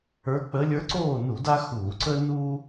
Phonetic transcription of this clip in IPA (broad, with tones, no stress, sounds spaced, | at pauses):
ə˞˧˥ k͡p ə˧˥ lʲ ə˞˧˥ ǀ oː˥˨ n u˧˩˧ d a˥ x uː˧˩˧ ǀ ə˥ n uː˥